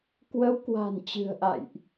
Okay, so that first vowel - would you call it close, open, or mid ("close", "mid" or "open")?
mid